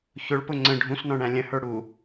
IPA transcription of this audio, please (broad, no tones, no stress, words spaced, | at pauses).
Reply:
çʊɭpʊ ŋ͡ǀə̃ ɖʱũsnɔ̃ɳæ̃ lʲə̃hə˞ ɽu